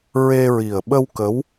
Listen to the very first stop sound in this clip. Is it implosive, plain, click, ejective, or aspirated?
implosive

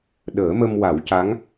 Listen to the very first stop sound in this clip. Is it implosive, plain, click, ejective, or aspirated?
implosive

